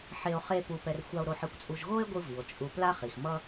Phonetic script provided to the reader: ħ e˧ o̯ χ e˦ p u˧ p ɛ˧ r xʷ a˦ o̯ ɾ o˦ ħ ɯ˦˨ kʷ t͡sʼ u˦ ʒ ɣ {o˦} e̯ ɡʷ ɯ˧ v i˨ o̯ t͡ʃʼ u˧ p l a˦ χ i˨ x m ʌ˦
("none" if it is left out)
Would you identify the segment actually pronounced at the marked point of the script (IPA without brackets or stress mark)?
o˦